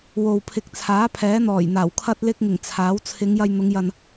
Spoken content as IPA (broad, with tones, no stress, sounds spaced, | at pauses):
w o˨ w pʰ ɪ˨ k̚ t͡sʰ aː˨˥ pʰ ɛː˨˥ n̪ ɔː˨˩ j n̪ aː˨˩ w kʰ ɐ˧ t̚ l ɪ˧ k̚ ŋ ɪ˨˩ ŋ t͡sʰ aː˨˥ w t͡sʰ ɪ˨˧ ŋ j ɐ˧ j n̪ ʊ˨˧ ŋ j ɐ˨ n